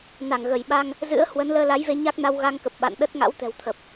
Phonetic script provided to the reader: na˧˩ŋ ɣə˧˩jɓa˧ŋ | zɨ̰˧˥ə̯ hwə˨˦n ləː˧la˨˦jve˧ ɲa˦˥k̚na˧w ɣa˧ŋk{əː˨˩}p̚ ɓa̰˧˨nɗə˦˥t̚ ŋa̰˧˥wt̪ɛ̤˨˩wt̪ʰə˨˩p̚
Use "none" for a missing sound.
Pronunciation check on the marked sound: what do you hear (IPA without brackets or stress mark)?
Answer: ə˨˩